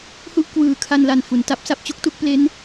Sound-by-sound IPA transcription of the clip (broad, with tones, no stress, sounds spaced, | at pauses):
h u˥˩ ʔ k w ɯː˨˩ kʰ a˧ n l a˨˩ n f u˩˦ n t a˥˩ p̚ s a˥˩ p̚ t͡ɕ u˥˩ k̚ t u˥˩ k̚ p l e˦˥ n